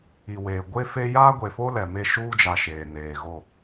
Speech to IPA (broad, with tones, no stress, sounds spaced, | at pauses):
i˨ w eː˨ ɡʷ e˦ f e˦ j aː˦ ɡʷ e˨ f o˦ l ɛ˨ m e˦˨ ʃ uː˦ d͡ʒ a˨ ʃ eː˨ n eː˨ ɣ o˦˨